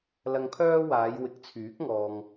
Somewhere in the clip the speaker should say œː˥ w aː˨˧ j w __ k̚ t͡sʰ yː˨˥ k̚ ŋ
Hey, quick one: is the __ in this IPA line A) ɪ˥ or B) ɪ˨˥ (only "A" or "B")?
B